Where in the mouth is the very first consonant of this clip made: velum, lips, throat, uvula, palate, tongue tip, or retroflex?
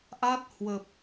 throat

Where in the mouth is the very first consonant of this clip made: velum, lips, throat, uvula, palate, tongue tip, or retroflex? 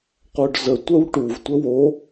uvula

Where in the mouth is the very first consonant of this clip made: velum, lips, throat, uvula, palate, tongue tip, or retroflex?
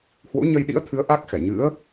throat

